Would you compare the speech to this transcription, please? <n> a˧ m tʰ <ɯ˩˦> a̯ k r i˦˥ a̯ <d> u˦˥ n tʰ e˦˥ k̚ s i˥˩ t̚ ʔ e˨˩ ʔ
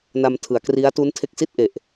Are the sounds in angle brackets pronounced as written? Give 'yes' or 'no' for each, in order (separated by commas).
yes, yes, no